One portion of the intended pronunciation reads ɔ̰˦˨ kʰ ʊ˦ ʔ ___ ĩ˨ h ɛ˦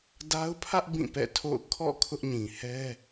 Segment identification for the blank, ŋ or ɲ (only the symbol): ɲ